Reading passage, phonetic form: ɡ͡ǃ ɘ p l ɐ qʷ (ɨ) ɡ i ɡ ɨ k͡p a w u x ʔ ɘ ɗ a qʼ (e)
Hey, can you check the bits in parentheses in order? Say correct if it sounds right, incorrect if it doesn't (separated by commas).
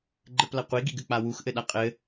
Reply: incorrect, incorrect